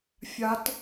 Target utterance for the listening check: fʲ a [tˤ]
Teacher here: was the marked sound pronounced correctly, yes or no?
no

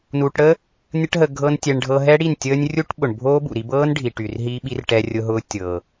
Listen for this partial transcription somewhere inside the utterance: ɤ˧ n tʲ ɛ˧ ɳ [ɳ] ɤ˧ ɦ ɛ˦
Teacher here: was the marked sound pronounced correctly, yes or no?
no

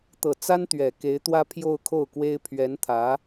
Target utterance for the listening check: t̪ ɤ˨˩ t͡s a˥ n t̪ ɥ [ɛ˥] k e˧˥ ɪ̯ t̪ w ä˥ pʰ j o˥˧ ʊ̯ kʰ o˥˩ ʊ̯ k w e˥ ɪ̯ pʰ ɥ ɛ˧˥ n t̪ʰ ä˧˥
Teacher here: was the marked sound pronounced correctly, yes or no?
no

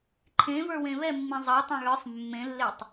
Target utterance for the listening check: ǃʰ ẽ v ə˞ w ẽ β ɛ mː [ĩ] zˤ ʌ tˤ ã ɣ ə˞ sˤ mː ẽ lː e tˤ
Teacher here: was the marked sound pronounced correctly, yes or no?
yes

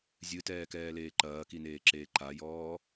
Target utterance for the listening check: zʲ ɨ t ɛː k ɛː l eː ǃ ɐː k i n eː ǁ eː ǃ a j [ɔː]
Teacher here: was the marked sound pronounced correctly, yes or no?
yes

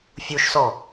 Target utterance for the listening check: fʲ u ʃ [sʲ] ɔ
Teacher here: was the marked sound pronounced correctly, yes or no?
no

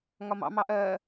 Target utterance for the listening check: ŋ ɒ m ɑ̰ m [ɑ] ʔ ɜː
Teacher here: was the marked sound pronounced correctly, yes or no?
yes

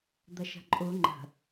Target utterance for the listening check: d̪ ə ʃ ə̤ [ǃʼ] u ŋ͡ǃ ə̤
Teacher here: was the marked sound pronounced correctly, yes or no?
yes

